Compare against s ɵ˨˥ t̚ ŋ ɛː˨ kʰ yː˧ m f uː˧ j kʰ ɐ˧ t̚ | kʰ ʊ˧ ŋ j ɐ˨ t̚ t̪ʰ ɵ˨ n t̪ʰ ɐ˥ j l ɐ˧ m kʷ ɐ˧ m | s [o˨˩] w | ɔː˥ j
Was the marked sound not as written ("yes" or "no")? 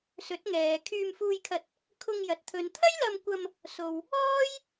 yes